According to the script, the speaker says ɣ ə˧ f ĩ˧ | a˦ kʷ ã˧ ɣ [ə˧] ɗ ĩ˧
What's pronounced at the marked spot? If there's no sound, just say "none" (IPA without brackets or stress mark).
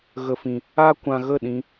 ə˦˨